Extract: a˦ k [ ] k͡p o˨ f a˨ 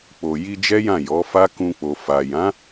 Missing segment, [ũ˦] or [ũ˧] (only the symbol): ũ˧